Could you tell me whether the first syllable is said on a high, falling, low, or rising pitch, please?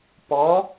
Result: rising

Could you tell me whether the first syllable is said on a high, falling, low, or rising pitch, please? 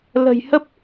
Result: low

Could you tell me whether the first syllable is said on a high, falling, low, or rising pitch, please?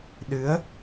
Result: rising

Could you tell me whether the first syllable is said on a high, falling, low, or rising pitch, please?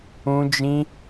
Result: high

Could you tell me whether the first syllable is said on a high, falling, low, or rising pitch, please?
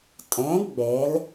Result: rising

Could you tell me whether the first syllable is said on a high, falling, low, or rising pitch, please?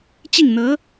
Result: falling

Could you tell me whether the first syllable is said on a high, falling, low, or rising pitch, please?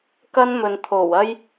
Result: high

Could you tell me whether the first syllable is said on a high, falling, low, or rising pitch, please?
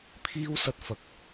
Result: high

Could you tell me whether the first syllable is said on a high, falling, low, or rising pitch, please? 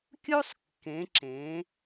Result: high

